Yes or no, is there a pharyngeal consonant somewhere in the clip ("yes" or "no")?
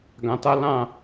no